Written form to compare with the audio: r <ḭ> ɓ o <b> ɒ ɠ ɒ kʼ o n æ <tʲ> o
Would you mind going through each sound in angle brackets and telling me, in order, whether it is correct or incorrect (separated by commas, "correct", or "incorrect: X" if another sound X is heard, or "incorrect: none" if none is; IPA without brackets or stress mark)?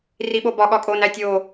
incorrect: i, correct, correct